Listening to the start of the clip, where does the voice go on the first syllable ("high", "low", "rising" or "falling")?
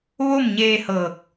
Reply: falling